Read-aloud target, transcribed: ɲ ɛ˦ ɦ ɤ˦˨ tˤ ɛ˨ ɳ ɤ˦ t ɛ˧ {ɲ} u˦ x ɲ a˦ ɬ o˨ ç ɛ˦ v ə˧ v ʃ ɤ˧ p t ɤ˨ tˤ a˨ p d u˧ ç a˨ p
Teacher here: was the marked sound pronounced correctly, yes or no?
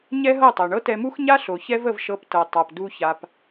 no